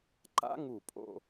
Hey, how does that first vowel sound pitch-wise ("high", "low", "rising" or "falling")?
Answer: high